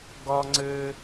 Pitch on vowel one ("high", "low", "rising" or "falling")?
high